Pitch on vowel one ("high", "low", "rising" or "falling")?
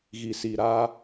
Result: low